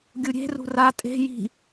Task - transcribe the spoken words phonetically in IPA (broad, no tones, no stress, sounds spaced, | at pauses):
ɡʲ u ɾʲ e̤ r ṳ r a tʼ e̤ j i̤